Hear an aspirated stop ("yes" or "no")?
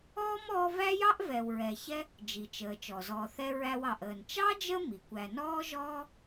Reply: no